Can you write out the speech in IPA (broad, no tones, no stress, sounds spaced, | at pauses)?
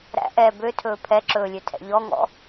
ɾ æ̰ ʔ ɛː b ø tʰ ɵː pʰ ɛ ǁ ɵː lʲ ø tʰ ɛ̰ ʎ ɔ ŋ ɔ̰